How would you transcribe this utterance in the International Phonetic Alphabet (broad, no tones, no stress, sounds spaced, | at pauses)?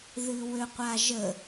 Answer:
ð ɨ w ø qʷ a ʒ ə